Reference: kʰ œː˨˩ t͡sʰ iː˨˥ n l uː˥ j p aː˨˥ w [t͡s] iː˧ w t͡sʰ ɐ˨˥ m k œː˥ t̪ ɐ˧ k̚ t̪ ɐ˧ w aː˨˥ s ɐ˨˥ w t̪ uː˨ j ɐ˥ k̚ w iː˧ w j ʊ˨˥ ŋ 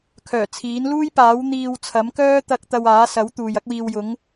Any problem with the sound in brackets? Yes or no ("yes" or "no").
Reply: yes